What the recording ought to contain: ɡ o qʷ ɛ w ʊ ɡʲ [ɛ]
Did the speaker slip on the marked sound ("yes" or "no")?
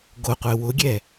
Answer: no